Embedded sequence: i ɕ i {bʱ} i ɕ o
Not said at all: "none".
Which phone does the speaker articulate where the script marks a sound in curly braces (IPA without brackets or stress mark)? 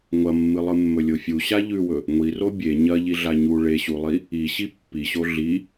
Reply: pː